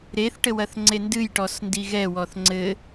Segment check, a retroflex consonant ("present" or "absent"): present